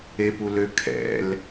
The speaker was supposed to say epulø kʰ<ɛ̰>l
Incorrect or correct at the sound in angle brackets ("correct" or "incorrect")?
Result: correct